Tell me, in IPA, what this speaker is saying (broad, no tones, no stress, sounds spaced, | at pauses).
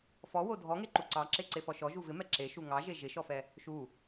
f ɔ w o dʱ ɔ ŋ e ǃ u ǀ ɑ ǁ e ǀ e f ɔ ʃ ɔ ʒ u v ɪ m ɛ ǁ e ʃ u ŋ ɑ ʒ e ʒ ɪ ʃ ɔ f ɛ | ʃ u